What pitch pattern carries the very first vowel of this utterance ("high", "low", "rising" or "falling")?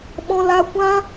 high